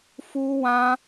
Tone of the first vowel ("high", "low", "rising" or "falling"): high